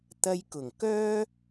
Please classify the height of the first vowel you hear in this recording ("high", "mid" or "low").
low